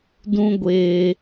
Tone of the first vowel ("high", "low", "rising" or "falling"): high